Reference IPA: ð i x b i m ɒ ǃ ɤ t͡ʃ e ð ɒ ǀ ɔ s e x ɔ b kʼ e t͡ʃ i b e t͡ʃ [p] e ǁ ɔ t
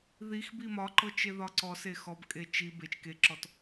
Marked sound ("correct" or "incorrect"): incorrect